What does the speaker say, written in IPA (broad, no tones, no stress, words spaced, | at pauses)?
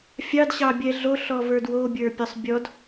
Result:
fʲɑdɕɑbʲɛ ɮoɬɔvə˞d wobʲə˞pʲɔsˤbʲɔd